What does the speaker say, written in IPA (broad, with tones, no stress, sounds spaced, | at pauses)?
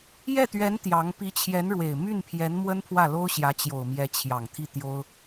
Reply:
j ɛ˥˩ t̪ ɥ ɛ˧˥ n t̪ j ɑ˧˥ ŋ p i˧˥ t͡ɕʰ j ɛ˧˥ n ɻ w e˨˩ ɪ̯ m y˥˩ n pʰ j ɛ˧˥ n m w ə˥ n pʰ w ä˥˩ l o˥ ʊ̯ ɕ j ä˧˥ t͡ɕ j o˨˩ ʊ̯ m j ɛ˧˥ t͡ɕʰ j ɑ˨˩ ŋ t̪ʰ i˥˩ t̪ j o˥ ʊ̯